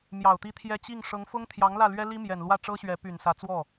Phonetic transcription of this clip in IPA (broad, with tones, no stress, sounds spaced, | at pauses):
m j ɑ˨˩ ʊ̯ t̪ i˥˩ t̪ʰ j ɛ˥ t͡ɕ i˥˩ ŋ ʂ ɤ˧˥ ŋ f ʊ˥ ŋ t̪ʰ j ɑ˧˥ ŋ l ä˥˩ l ɥ ɛ˥ l i˥ m j ɛ˨˩ n l w ä˥˩ ʈ͡ʂ ɤ˥ ɕ ɥ ɛ˧˥ p y˨˩ n s ä˧˥ t͡s w ɔ˥˩